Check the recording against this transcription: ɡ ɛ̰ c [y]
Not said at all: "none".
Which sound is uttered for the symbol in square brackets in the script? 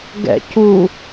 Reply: u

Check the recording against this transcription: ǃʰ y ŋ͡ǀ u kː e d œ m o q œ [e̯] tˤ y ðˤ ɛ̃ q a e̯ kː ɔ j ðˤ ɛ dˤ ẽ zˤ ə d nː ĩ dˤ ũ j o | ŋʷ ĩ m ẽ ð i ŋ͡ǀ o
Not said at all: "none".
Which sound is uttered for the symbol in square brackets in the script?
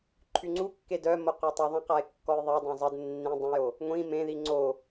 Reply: none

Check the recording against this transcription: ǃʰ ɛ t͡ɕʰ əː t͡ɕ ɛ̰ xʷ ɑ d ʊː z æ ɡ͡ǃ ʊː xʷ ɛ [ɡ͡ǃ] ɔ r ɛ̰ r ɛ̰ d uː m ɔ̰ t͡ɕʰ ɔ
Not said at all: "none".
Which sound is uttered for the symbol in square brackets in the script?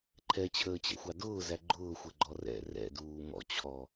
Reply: ɡ͡ǃ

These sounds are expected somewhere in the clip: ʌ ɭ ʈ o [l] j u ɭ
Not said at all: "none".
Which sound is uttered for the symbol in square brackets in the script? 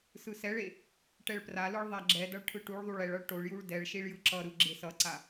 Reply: ɭ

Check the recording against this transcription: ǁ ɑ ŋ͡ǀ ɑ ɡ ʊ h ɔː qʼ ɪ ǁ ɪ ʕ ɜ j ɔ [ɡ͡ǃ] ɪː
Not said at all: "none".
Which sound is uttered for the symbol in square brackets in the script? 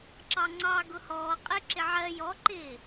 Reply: ǃ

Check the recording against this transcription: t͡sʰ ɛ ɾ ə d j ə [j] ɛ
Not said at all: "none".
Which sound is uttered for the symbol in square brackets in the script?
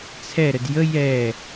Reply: j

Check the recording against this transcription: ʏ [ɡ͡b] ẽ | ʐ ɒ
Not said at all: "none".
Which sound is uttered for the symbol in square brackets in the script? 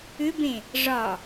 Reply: b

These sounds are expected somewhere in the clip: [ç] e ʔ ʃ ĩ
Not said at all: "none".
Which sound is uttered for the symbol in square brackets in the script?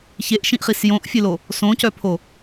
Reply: ç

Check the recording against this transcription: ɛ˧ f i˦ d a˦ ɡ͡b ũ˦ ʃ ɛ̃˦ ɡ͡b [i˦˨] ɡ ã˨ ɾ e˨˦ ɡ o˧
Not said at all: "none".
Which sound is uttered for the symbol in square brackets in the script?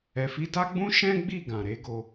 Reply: i˦˨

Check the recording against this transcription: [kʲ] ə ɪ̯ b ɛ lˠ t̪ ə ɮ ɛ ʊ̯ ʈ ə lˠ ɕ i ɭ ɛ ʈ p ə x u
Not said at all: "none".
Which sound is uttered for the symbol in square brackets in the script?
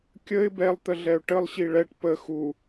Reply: kʲ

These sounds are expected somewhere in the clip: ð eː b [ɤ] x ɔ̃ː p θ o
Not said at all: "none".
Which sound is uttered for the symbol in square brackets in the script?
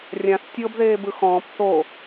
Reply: ɯ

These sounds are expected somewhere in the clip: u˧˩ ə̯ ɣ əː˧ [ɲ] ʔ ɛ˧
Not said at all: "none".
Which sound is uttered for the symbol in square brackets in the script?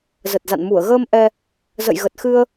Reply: m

